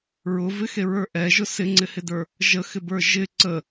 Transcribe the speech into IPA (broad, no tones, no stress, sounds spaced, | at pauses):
ɹ ʊ v ɪ x e ɹ ə˞ ʔ ɛ ʒ ʊ s ɪ ŋ͡ǀ ɪ h ɪ d ə˞ | ʒ ə x ɪ b ə˞ ʒ ɪ ǀ ə